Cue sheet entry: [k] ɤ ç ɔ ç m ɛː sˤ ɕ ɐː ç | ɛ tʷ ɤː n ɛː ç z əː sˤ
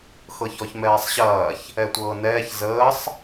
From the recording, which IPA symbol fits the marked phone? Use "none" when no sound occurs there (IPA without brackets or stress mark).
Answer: x